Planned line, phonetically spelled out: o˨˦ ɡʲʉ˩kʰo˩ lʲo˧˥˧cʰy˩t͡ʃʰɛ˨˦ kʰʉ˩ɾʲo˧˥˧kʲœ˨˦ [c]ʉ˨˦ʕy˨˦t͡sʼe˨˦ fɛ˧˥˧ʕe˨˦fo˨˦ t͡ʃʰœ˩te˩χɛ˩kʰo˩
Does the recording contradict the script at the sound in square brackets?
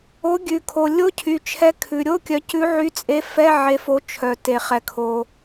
no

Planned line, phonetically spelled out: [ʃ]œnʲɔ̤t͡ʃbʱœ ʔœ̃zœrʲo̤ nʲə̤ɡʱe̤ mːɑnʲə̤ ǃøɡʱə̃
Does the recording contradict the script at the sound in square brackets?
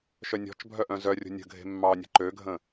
no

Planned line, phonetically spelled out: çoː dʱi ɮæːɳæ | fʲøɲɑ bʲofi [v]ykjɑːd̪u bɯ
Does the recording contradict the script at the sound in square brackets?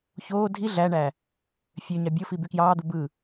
yes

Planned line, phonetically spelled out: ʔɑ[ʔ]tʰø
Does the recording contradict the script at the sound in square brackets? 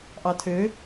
yes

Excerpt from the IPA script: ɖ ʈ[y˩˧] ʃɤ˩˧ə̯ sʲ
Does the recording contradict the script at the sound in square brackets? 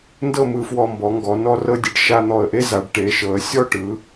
yes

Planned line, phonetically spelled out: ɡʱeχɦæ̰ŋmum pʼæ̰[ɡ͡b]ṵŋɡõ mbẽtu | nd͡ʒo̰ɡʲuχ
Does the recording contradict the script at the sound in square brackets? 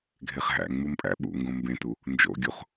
yes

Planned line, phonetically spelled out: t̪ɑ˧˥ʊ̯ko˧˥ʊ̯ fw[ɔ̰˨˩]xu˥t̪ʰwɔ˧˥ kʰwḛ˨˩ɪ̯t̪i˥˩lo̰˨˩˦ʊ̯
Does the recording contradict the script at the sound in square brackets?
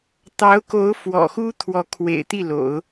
no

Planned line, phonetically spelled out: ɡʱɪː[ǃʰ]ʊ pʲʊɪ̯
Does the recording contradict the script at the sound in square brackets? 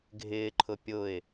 no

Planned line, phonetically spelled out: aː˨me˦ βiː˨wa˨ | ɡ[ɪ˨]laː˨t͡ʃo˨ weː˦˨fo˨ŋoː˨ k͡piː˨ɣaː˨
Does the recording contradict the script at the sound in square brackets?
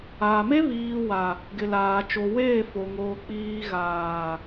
no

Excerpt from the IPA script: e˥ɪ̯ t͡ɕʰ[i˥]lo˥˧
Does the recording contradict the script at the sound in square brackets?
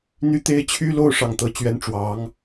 yes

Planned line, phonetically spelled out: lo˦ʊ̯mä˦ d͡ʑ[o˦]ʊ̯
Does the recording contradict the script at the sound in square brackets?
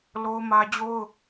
no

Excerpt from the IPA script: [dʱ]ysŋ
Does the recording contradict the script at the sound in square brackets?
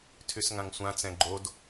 yes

